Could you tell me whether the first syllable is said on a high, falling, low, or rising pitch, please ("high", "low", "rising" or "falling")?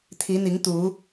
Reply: rising